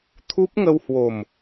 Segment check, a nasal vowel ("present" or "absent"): absent